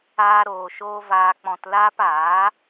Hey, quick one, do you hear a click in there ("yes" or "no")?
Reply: no